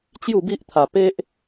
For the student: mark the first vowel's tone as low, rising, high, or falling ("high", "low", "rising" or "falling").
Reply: falling